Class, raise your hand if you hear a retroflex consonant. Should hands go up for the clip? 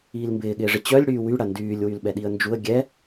yes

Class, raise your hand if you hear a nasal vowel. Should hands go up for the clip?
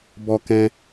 yes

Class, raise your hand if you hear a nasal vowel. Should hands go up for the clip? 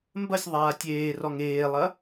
no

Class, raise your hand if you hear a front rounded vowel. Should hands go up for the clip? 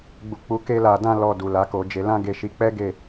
no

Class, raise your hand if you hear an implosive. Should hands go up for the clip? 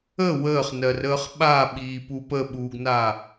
yes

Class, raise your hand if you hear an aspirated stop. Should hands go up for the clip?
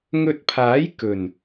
yes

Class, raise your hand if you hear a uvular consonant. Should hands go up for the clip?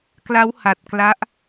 no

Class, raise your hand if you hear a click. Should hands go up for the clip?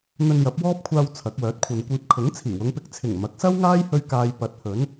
no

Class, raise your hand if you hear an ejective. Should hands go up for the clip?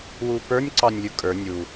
yes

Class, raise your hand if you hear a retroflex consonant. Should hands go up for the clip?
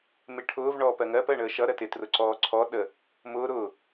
yes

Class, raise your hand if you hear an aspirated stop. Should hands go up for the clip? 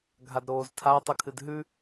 yes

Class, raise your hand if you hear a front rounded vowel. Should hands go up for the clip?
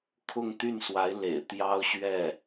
yes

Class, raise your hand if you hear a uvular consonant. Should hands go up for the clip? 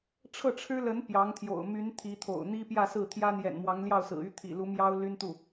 no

